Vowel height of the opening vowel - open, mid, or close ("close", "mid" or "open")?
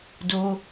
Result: mid